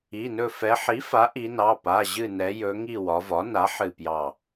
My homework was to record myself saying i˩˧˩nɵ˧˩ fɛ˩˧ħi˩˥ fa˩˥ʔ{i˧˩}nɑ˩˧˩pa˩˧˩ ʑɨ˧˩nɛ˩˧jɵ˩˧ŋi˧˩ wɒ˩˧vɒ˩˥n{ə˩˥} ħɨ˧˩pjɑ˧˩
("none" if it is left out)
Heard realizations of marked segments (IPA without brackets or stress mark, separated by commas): i˩˧, a˩˥